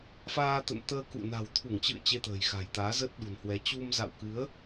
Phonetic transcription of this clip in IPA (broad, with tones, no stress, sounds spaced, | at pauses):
f aː˧ t̪ ə̰˧˨ n t̪ əː˧ k ṵ˧˨ n a̤˨˩ w t̪ʰ u˧˩ ŋ t͡ɕ ɨ̰˧˨ ə̯ t͡ɕ e˧ t̪ ə̤ː˨˩ j x a̤˨˩ j t̪ aː˨˦ z əː˦˥ t̚ ɗ ṳ˨˩ n h w ɛ˨˦ t͡ɕ u˧ m z a̰˧˨ w k ɨ˨˦ ə̯